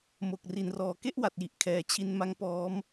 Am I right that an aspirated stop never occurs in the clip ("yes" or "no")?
no